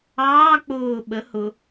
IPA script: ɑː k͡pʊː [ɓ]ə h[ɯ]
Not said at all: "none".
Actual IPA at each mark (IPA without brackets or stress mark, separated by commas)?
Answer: ɓ, ʊ